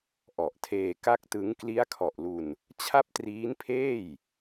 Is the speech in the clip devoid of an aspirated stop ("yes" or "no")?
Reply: no